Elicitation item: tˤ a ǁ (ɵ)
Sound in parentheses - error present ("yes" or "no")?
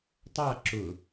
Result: yes